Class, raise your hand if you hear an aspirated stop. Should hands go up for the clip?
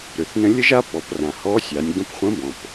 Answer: no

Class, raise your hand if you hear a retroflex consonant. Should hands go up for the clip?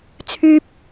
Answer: no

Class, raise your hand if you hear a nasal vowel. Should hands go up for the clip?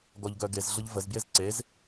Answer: no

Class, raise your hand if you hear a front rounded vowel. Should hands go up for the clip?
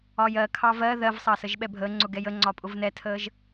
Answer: no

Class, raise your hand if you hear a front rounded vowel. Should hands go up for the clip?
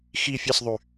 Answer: yes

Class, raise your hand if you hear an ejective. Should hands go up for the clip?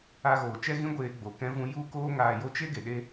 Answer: no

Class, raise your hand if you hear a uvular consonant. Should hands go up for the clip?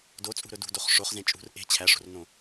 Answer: yes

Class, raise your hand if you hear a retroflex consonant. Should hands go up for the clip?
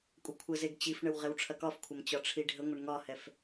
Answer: yes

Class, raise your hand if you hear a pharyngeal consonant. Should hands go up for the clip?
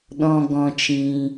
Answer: no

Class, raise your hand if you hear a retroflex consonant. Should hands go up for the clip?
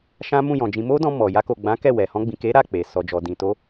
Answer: no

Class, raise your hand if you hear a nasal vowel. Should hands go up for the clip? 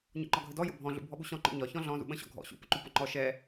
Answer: yes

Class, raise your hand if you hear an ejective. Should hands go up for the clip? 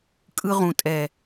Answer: yes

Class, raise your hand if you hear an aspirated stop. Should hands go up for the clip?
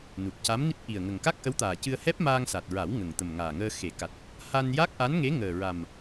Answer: no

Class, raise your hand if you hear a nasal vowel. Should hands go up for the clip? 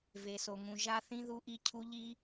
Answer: yes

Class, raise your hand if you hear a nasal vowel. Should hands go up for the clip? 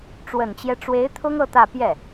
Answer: no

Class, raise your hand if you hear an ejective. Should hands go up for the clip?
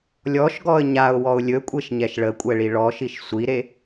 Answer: yes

